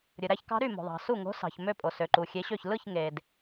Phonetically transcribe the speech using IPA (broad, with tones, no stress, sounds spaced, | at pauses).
ɾʲ ɯ˨ ɾ æ˧˥ ç k ɑ̤˧˥ ɾ y˥˨ m o̤˨ ðˤ ɑ̤˨ s u˥˨ ŋ o̤˧˥ s ɑ̤˨ ç m ø˥˨ pʼ o˨ s ø˨ ǃ u˨ xʲ e˧˥ ɕ ø˥˨ ç l ɯ˥˨ ç ŋ e˨ d